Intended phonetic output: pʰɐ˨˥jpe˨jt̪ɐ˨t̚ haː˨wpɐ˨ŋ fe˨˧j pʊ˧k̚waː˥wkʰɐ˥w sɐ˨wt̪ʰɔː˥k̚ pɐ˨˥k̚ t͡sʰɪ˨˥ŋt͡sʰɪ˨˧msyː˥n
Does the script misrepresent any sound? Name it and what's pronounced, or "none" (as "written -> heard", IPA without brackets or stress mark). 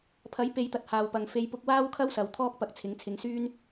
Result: m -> ŋ